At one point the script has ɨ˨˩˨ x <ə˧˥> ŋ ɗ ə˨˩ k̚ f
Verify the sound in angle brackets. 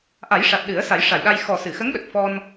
correct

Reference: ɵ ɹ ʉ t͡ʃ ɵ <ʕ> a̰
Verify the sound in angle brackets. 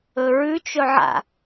correct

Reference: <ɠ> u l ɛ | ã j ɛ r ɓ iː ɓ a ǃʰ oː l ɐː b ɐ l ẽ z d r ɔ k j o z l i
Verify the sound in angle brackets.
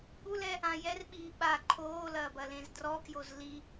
correct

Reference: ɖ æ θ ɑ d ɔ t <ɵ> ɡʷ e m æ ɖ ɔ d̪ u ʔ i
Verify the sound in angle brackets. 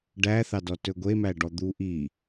correct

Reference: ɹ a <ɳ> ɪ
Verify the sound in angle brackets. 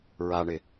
correct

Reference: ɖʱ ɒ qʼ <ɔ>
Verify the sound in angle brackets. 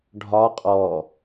correct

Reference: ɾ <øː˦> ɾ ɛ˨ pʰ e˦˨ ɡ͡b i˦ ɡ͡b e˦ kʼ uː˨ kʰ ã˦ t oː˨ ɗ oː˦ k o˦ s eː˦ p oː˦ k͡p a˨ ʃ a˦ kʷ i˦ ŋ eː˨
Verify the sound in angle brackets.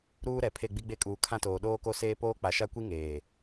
incorrect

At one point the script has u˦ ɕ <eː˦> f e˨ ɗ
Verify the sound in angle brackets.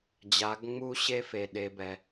incorrect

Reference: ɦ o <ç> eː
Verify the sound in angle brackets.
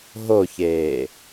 correct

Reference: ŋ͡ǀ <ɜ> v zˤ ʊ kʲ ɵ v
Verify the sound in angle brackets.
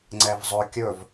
incorrect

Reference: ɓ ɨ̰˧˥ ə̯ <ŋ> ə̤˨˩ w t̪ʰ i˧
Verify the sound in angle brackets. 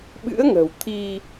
correct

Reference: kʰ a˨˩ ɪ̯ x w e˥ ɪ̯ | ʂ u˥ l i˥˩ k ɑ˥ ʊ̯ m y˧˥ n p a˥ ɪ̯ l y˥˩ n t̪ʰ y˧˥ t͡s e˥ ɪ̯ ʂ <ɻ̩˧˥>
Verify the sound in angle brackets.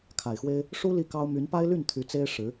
correct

